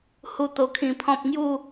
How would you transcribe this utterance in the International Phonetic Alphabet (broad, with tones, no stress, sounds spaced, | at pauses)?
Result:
h u˦ t̪ o˧ kʰ ĩ˧ pʰ ɔ̃˦ p̚ ŋ j u˥˧